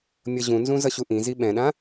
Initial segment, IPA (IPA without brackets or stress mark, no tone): mʲ